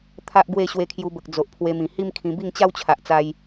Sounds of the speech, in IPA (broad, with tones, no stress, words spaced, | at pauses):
t̪ʰa˦ʔɡwe˥˧ ɕwe˧kʰju˧bə˨k̚ d͡zo˨ʔpʰwe˧mĩ˨˩ hi˦mkʰĩ˧ bi˥˧ŋt͡ɕa˦wt͡ɕʰa˨ʔt͡sa˧j